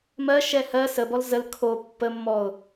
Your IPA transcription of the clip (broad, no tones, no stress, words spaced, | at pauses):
mɜ ʃɛhɜ səbɔl zəl kʰo pːəmːɔʊ̯